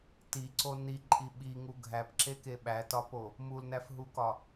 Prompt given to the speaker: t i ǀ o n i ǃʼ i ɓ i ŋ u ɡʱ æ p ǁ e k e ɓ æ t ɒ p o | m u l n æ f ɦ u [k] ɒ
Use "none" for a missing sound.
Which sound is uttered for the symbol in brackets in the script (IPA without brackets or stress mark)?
k